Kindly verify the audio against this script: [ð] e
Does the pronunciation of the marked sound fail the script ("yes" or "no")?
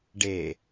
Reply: yes